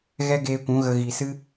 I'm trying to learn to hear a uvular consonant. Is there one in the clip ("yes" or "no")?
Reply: no